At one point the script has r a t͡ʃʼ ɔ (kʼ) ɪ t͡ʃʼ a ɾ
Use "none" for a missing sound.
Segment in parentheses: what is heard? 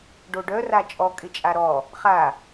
kʼ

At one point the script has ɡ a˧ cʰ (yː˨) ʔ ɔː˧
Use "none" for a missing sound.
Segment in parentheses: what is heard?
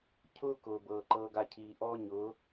iː˨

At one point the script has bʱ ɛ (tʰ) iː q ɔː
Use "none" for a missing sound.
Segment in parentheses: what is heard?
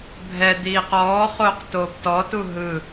d̪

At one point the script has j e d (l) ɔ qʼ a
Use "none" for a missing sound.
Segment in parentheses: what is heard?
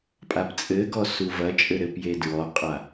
ɹ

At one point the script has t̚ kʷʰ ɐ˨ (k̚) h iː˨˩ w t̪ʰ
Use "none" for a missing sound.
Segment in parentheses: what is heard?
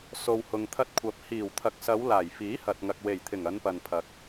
p̚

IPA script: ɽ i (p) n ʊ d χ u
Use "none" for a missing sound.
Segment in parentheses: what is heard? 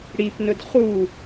p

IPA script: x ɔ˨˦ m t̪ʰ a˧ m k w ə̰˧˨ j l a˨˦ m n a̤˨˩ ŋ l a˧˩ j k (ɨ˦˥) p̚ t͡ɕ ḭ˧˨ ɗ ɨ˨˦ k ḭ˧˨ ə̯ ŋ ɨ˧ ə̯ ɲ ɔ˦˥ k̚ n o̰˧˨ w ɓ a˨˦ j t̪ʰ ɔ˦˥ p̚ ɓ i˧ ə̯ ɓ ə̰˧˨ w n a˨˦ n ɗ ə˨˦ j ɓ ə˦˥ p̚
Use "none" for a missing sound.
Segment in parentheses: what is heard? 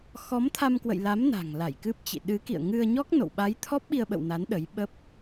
ɨ˦˥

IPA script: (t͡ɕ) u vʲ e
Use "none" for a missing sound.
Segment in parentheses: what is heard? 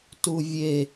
t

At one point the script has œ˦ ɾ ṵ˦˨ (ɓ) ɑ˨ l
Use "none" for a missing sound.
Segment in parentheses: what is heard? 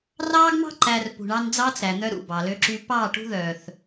b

